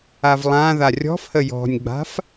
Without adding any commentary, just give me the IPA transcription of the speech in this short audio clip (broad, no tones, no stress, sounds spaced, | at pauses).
a v lˠ ã ð a rʲ ɔ̤ f h ə j ɔ̤ nʲ ɡ͡b a̤ f